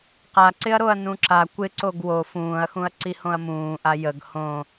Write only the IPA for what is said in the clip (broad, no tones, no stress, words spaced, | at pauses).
qaǀɪɐ̯ɾoɐ̯ nũǁa kʷɪ ǀoɡwo fũːɐ̯xũɐ̯ ǀihõɐ̯mũːʔa jəɡ hõ